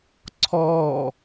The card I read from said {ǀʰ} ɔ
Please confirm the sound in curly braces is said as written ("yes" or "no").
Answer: yes